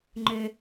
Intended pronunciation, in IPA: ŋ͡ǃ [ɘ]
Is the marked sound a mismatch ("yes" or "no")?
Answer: yes